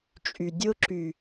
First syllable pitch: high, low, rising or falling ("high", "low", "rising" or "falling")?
low